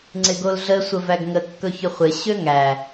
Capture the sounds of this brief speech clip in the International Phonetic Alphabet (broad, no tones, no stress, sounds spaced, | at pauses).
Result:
ŋ͡ǀ ɪ ɡ o l ɮ ə sʷ ə v æ ɡ ŋ ə kː ɵ ç ɵ χʷ ɪ ɕ ø ŋ æ